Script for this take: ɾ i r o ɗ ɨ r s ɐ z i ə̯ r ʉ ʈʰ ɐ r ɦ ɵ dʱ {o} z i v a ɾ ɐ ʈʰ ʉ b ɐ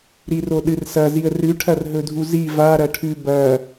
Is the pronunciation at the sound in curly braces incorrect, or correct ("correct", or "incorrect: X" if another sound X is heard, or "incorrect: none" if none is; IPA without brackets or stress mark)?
incorrect: u